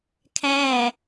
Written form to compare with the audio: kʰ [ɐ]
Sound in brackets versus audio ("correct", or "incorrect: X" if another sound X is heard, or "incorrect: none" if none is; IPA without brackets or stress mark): incorrect: æ